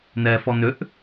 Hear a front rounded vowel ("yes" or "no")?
yes